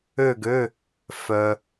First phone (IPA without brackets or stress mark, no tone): ø